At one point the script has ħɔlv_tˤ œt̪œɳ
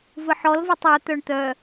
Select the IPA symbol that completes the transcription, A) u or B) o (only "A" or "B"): B